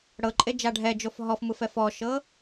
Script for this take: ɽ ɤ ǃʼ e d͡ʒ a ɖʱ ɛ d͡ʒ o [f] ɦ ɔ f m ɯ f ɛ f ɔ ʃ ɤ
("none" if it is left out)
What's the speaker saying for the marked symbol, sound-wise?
f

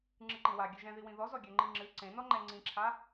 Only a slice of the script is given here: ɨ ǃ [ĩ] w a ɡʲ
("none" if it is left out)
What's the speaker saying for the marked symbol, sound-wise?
ĩ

